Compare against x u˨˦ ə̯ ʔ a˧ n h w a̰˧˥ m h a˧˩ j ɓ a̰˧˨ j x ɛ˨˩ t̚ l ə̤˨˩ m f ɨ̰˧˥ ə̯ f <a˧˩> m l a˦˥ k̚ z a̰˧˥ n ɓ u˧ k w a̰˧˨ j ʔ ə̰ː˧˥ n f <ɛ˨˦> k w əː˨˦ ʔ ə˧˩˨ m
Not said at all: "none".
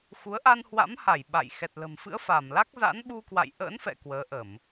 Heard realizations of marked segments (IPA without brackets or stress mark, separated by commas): a˧˩, ɛ̰˧˨